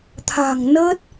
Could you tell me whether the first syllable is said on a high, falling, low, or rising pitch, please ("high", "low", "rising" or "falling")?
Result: low